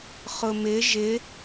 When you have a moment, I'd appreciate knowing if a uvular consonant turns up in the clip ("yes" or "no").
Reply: yes